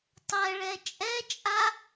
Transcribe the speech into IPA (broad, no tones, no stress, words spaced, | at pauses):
tˤɛɭɛ t͡ʃʼɛt͡ʃʼa